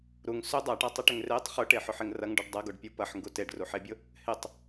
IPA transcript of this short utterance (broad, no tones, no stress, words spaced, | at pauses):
ɾuŋ sʏ dˤaʈatˤɛʈʏŋ retˤ χʊʈeħʊħɪŋ rɐŋɖuɖ dˤɐɡoɖpʲo pɐħŋɡu teɖruħebʲʊ | hɪtˤ